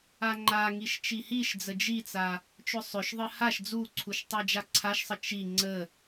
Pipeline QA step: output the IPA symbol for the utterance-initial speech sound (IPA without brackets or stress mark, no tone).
a